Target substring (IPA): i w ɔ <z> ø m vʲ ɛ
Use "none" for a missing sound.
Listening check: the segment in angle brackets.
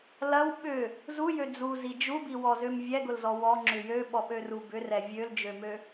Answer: z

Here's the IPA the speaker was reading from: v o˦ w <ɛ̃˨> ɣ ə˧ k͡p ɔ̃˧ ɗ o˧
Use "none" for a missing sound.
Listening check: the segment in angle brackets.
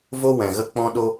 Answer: ɛ̃˨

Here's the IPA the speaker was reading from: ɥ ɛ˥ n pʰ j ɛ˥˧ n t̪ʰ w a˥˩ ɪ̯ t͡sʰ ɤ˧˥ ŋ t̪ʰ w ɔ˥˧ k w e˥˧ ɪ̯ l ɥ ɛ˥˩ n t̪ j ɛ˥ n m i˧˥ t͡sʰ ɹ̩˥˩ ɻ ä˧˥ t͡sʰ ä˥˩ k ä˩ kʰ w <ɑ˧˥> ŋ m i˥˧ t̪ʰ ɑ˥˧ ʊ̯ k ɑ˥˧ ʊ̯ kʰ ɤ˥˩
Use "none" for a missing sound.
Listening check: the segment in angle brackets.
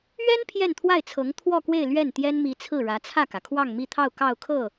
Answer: ɑ˥˧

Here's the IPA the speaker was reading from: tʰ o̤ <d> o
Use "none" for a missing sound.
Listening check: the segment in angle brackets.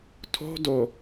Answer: d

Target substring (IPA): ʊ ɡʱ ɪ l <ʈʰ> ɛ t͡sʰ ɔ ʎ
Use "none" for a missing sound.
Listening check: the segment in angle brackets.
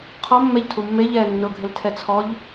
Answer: tʰ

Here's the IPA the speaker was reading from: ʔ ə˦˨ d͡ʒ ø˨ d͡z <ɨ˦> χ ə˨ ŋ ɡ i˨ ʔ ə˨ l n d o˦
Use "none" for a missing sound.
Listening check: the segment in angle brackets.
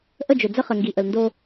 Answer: ə˦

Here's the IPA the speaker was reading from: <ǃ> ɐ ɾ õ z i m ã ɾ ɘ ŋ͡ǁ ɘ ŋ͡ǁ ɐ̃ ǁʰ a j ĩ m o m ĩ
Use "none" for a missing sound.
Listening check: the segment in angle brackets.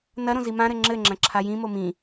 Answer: n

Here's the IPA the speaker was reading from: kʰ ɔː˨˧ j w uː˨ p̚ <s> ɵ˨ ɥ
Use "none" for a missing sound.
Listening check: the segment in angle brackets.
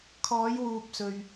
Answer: s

